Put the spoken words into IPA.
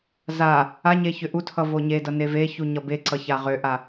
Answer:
z a | a ɲ e ç ʏ ʔ u tʰ ʌ v o ɲ e d ʌ n e v e ç u ɲ ʌ b e ǀ ʌ ç a ʁ ø ʔ a

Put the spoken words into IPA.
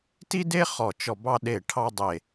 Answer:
t i˥ d e˥ χ ɔ˦˨ t͡ʃ ɔ˦˨ b ɑ˥ ɗ e˦˨ ʈʰ ɑ˥ dˤ e˦˨

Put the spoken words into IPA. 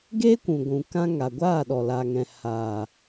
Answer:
ɡ eː˦ kʷ ũ˨ ɡʷ ũ˨ k ã˧ ŋ a˨ ɡʷ aː˦˨ ɗ ɔ˨ l a˨ ŋ ɛ̃˨ h aː˨

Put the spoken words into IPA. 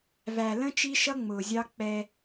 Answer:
v æ˨ l ə̃˦ t͡ʃ i˦ ʃ ʌ˦ ŋ͡m ʊː˨ zʲ ɑ˦ k͡p ɛ˦

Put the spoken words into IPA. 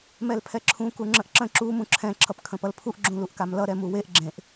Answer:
m ɛ l pʰ ɛ ǁʰ ũ k u ŋ͡ǁ ə̃ ʔ ǁ ə̃ ǁ u m ũ ǁʰ ɛ̃ ǁʰ ʌ p kʰ ə̃ p ʌ l pʰ u ʔ ɡ͡ǁ ũ l u ʔ k a m l ʌ ɾ ɛ m u w e ʔ ɡ͡ǁ ẽ ʔ

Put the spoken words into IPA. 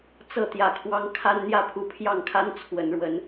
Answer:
t͡s ɤ˥˨ t̪ j ä˨˩ kʰ w ɑ˦ ŋ kʰ a˦ n n̪ j ä˥˨ pʰ u˨˦ pʰ j ɑ˥˨ ŋ kʰ a˦ n t͡sʰ w ə˨˦ n ɻ w ə˨˦ n

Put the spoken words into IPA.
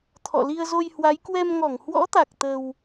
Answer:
t̪ʰ ɔ̰˧˨ l i˧ ə̯ z o˧ j h w a˨˦ j k w ɛ˧ m ŋ ɔ˧˩ ŋ h w ɔ̰˧˥ t̪ a˨˩ k̚ t̪ ə˧ w

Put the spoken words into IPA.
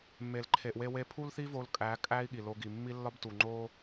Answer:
mː e˨ l ǃʰ e˨ ʔ w e˦ w e˦ pʰ u˦ l θ i˦ v o˧ l kʼ æ˨˦ kʼ æ˦ i̯ ɠ i˨ l o˧ ɡ i˨ mː i˦ lː ɒ˦ b t u˨ ŋ͡ǃ o˦

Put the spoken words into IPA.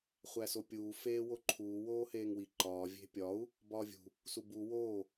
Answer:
χʷ æ s o pʲ uː f eː w o ǃʰ uː w oː h eː ŋ w i ǃ ɒː vʲ e̤ pʲ ɒ u̯ | b ɒː vʲ ṳ | s u b u w oː

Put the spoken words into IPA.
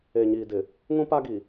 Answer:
e˨ ɲ iː˨ d ɪ˨ | ŋ ũ˦ p a˦ ɡ i˨

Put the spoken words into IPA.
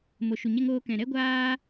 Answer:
m o˨ ʃ u˨ ɲ ɛ˧ ŋ oː˧ k ɛ̃˨ ɾ ɛ˦ ɡʷ aː˧

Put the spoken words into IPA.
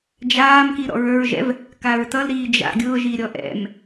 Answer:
d͡ʒ aː m k i ɾ ɔ̰ ɹ ə˞ ɹ ʒ ɛ̰ v | k a ɹ t ʌ l ɾ iː d͡ʒ a̰ ɡʲ ʊː ʒ i ɾʲ ɔ ʔ ɛ̰ m

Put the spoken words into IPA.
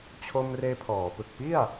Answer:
t͡ɕʰ o˧ m r eː˧ pʰ ɔː˩˦ p ɯ˨˩ k̚ p i˥˩ a̯

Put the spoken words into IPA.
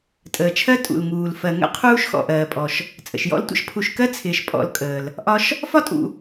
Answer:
tʼ əː˩ t͡ʃʰ ɜ˥ tʼ ṵ˩ l ŋ uː˩ l f ɜ˩ ŋ ə̰˥ qʰ uː˥ ʃ x ɔ̰˩ ʔ ɜː˩ pʼ ɔ˩ ʃ | t͡sʼ ə̰˩ ʃ j ɔ̰˥ l tʷ ə̰˦ ʃ pʰ u˨ ʃ k ɜ˥ t͡sʰ ɪː˩ ʃ pʼ ɔ̰˨ l kʼ əː˩ l | ʔ ɒ˦ ʃ | f ɒ˥ tʼ ṵ˨

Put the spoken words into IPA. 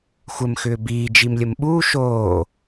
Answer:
xʷ ə m x ʏː b iː d͡ʒ i m lʲ ə m ɓ uː ʃ oː

